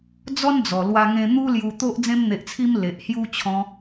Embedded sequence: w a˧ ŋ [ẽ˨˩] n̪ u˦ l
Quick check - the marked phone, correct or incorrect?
incorrect: ẽ˧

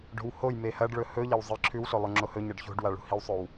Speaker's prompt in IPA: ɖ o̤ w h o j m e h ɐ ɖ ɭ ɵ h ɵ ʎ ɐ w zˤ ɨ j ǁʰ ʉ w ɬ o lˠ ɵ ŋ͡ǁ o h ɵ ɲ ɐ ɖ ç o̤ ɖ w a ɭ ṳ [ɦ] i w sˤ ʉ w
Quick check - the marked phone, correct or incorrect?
incorrect: h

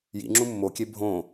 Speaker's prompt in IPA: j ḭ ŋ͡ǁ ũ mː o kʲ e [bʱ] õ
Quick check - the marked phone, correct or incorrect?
correct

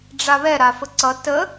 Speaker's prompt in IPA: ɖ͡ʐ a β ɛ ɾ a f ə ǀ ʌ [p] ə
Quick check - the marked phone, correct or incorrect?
incorrect: t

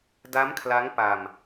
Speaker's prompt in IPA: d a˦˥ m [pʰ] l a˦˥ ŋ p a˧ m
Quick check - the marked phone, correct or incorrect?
incorrect: kʰ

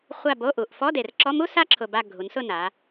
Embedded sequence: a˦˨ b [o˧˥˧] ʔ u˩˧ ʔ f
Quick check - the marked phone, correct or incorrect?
correct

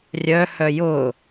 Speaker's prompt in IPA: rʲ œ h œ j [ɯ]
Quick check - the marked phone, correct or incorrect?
incorrect: ʊ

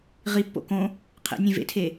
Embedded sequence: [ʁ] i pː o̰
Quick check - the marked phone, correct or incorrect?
correct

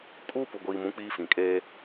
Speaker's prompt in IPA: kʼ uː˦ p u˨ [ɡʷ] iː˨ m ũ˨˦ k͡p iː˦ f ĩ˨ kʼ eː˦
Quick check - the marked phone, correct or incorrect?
correct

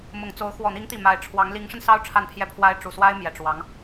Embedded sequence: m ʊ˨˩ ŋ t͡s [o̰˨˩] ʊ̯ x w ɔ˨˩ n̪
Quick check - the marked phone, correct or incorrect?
incorrect: o˧˥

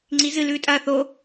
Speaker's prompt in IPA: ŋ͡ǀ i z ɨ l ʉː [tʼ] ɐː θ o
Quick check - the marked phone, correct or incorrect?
correct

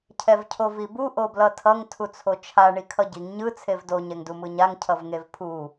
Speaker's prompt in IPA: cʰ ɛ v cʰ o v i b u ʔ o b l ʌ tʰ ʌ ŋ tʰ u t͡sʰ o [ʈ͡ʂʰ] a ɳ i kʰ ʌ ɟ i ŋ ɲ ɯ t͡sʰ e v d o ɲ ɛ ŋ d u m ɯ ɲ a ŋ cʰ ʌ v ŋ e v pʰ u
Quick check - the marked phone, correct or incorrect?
incorrect: t͡ʃʰ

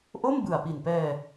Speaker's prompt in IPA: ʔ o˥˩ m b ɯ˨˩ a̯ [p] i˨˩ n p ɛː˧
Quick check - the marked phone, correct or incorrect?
correct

